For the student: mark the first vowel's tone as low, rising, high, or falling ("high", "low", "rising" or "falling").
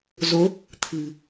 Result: rising